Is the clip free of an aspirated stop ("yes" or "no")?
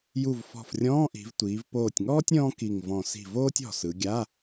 yes